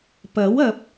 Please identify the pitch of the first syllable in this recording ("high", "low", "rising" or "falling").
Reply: rising